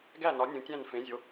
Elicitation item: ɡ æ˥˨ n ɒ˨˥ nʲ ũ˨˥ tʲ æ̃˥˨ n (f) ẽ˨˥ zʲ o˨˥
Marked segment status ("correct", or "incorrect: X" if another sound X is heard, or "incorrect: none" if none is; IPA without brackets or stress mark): correct